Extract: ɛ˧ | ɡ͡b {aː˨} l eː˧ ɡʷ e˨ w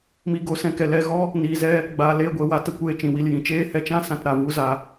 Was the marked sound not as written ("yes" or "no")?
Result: no